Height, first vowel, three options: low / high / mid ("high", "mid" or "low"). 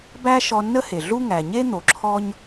low